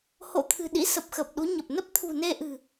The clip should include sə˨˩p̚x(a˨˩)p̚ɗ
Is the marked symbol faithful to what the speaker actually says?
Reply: no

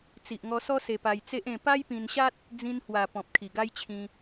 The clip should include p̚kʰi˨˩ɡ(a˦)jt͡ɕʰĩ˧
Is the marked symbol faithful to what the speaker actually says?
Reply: yes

